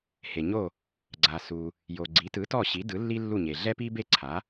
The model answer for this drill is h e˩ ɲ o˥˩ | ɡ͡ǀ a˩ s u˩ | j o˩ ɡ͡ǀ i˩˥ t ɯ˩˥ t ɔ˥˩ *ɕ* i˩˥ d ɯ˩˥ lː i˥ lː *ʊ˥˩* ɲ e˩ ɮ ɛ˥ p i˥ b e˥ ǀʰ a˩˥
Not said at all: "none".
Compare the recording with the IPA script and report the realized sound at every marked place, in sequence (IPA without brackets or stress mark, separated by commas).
ɕ, u˥˩